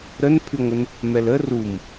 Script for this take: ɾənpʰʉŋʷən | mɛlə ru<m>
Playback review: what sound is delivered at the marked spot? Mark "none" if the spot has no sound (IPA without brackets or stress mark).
m